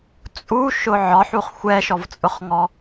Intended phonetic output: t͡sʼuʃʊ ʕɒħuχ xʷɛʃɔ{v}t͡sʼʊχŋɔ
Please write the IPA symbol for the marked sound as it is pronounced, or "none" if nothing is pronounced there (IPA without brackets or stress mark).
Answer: v